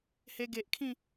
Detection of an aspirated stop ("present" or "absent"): present